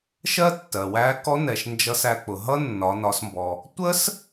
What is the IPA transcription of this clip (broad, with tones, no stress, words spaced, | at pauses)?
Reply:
ʃɜ˥tːɜ˩wæ˧˥ kɔ˧˥nɛ˩ʃ nd͡ʒʌ˧sæ˧k͡pʊ˩ɦʌ˥ nːɒ˩˧nɒ˩˧smbɔ˩ | tʷə˥s